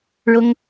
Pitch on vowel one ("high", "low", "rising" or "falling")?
high